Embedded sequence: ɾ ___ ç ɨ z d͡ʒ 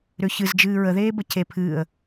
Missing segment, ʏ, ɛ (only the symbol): ʏ